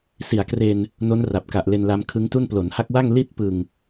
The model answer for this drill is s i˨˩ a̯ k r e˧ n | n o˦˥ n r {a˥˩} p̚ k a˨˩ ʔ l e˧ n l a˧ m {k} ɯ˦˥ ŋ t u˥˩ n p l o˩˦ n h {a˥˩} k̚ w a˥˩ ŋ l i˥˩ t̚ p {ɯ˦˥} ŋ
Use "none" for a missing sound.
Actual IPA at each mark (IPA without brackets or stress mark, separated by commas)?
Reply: a˨˩, kʰ, a˦˥, ɯ˨˩